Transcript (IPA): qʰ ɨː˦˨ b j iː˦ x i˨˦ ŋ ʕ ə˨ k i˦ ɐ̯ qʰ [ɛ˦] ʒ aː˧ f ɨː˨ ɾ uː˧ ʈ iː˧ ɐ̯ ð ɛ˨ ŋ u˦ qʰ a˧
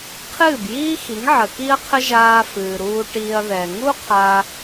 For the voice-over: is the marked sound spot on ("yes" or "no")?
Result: no